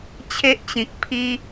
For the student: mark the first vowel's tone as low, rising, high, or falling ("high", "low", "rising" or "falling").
high